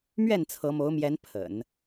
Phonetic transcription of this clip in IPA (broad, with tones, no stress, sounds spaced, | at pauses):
m ɥ ɛ˥˩ n t͡sʰ ɤ˧˥ m o˧˥ ʊ̯ m j ɛ˧˥ n pʰ ə̰˨˩˦ n